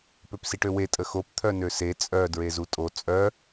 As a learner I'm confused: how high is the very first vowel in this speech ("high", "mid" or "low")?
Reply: mid